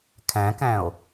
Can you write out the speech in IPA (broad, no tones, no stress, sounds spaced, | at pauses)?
kʰ æ̃ k æ̃ o̯